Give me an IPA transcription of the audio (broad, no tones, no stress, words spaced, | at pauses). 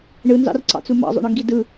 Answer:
ɳɯnzɑ̰rǀɑ̰t͡su mɑ̰zˤo̰ɳɯŋɡi dɯ